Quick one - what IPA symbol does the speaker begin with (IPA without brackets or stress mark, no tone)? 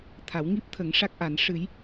t̪ʰ